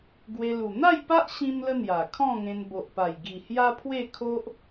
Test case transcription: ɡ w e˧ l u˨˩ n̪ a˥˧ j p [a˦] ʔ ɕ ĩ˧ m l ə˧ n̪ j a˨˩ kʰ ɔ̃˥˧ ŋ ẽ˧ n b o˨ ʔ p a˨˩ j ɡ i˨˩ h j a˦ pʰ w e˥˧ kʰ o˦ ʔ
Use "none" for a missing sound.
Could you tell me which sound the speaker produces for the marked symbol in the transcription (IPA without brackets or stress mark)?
a˦